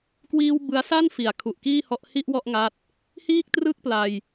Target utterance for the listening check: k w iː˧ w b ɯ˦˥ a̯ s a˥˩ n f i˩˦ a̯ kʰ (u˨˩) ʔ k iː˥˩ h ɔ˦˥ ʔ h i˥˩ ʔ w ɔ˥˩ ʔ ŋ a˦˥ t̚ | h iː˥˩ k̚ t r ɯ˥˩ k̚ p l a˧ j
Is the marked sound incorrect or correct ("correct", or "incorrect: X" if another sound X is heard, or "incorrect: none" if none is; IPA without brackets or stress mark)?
correct